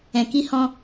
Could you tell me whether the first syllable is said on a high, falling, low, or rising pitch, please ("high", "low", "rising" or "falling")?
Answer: low